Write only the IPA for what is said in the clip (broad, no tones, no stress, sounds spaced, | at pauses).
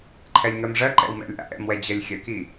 ǃʰ ɛ lʲ ŋ ɜ m ʐ ɜ ǃ ɛ̰ w m ɛ̰ lʲ ʔ a̰ ʔ ɛ̰ m w ɛ d͡ʑ ɜ lʲ xʲ ɜ k i